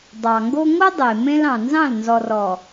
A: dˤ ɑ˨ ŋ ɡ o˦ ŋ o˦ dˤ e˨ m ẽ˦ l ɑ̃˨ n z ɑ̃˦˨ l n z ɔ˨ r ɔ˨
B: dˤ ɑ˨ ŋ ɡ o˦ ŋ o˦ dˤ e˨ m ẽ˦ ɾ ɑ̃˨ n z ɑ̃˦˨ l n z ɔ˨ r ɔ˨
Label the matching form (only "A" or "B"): A